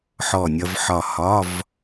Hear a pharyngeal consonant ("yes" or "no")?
yes